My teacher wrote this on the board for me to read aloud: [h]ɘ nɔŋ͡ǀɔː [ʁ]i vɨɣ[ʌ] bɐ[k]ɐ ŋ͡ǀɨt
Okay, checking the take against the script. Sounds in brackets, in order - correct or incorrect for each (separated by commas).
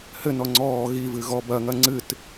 correct, incorrect, incorrect, incorrect